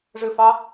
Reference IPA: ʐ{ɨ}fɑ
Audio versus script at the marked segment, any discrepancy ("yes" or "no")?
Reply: no